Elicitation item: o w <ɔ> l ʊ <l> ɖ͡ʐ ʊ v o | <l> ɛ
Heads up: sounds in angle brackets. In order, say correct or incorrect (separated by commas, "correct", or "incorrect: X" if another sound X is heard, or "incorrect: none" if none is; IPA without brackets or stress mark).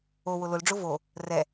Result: incorrect: ʊ, correct, incorrect: r